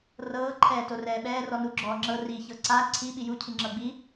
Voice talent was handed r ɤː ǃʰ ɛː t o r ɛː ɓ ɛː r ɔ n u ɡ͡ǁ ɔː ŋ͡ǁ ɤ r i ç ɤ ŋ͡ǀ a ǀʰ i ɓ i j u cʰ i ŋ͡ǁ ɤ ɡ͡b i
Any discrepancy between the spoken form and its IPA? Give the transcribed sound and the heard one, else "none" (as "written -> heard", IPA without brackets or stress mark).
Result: ŋ͡ǀ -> ǀ